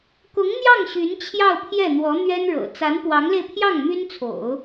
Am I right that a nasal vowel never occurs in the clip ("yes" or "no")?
yes